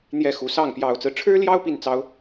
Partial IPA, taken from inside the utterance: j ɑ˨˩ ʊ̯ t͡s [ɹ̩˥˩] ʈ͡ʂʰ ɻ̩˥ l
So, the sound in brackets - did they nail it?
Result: no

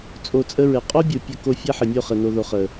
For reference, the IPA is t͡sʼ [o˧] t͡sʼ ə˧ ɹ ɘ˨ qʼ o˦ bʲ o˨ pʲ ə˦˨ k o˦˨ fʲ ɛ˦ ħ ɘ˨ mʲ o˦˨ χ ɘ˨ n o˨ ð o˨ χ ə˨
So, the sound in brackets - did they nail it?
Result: yes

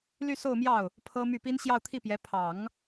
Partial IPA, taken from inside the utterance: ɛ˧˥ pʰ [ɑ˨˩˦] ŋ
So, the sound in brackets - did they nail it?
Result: yes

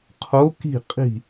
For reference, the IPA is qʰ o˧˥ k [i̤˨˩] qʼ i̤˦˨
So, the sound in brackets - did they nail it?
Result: no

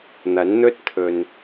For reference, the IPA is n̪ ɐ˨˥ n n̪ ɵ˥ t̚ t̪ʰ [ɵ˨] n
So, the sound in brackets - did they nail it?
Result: yes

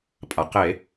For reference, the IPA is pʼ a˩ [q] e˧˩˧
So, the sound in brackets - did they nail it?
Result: yes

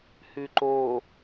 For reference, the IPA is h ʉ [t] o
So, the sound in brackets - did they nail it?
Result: no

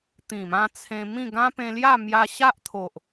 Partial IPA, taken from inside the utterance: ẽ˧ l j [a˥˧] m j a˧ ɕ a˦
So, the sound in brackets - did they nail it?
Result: yes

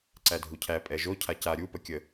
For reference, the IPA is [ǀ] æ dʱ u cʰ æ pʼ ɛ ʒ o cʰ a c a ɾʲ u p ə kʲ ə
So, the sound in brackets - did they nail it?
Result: yes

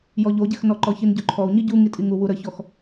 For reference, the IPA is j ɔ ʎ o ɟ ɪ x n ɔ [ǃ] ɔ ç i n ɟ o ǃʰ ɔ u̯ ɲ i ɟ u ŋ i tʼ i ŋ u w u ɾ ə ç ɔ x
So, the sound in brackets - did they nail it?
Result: yes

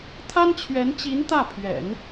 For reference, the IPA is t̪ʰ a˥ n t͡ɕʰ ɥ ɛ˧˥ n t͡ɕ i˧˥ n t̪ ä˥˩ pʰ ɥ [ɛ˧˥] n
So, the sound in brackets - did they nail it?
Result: no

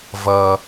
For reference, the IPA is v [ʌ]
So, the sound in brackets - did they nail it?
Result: yes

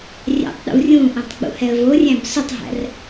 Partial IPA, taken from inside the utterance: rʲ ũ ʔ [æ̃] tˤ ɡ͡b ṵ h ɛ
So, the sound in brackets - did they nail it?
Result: no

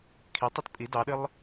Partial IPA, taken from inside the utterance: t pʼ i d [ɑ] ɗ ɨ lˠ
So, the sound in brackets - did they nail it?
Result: yes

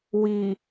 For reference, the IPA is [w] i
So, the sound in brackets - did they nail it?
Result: yes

